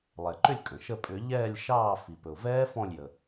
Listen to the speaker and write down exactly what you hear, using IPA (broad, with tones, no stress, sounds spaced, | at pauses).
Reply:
lˠ ɛ˩ ǃ ʏ˦˨ lʲ kʼ ə̃˩ ʃ ə˦˨ pʼ ʏ˧˩˧ ʎ ɛː˦˨ lʲ ʃ ɑː˦˨ f i˩ p ɵ˩ ʊ̯ v ɛː˦˥ f ɔ̃˦˨ lʲ j ə˩